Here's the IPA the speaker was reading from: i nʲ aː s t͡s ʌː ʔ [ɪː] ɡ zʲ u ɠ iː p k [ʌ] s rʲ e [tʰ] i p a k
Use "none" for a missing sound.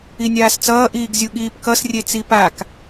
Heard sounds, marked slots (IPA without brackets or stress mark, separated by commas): iː, ʌ, t͡s